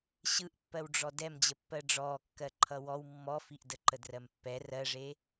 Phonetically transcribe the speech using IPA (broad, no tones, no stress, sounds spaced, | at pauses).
ɕ ɯ ʔ pː ɜ w ɖ͡ʐ ɔ d ɛ m d͡ʑ ə pː ɜ ɖ͡ʐ ɔː kː ɜ ǃʰ ʌ w ɔ w mː ɔ f i ʔ d ə ǃ ə d r ɜ m pː ɛ r ɜ ʐ e